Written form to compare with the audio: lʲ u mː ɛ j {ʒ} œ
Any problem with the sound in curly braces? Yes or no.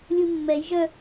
no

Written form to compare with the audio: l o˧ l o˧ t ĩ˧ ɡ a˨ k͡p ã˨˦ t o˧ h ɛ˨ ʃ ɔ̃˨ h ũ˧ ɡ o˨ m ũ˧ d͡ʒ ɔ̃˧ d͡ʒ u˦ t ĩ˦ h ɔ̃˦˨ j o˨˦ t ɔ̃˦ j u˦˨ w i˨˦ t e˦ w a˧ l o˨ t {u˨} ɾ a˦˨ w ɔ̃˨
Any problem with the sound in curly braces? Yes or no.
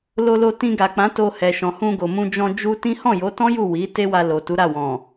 yes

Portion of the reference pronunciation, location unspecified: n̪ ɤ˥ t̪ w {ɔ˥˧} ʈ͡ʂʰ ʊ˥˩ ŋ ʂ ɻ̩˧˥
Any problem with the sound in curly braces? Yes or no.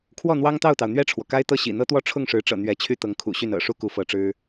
no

